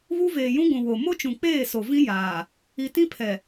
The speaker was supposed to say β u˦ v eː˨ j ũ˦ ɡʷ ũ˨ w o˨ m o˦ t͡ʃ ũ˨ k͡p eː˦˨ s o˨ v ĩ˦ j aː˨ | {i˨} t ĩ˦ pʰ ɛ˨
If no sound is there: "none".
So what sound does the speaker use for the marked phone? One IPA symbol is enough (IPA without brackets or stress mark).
i˨